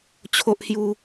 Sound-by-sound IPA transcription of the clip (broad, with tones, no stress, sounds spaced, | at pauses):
t͡ɕʰ o˦ ʔ h j u˦